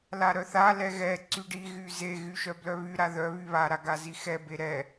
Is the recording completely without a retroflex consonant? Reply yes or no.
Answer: no